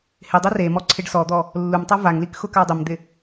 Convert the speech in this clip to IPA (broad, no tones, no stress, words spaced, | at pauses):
hɪdˤe remɔ ǀʰɪɖsɔd̪ɔ | lːumtˤa vaŋlik xʊkadˤɪmd̪ɪ